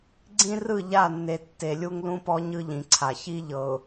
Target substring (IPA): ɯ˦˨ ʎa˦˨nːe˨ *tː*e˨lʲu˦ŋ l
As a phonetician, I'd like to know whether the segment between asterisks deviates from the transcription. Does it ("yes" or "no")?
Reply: no